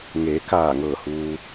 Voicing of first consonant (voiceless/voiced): voiced